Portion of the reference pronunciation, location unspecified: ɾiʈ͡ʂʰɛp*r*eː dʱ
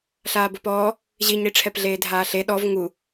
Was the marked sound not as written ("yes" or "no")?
yes